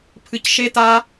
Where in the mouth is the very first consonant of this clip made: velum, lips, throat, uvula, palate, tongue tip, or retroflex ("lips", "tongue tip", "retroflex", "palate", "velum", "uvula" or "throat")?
lips